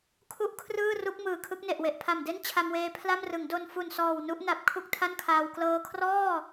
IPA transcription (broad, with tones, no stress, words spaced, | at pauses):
kʰu˥˩ʔ kʰrɯː˥˩ru˦˥k̚ mɯː˨˩kʰɯ˦˥k̚ne˨˩ʔwe˨˩ʔ pʰa˨˩mde˥˩n t͡ɕʰa˧mweː˧ pʰla˥˩mrɯ˩˦ŋ do˧n fu˨˩nsɔː˨˩w nu˦˥ʔna˨˩p̚ kʰu˥˩k̚tʰa˥˩nkʰaː˧w klɤː˧kʰrɔː˥˩